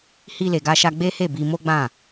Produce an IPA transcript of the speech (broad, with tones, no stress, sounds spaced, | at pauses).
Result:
h i˧ l e˨ ɡ a˧ ʃ a˧ ɡ͡b e˦ h e˦˨ b i˧ m o˦ ɡ͡b ã˦˨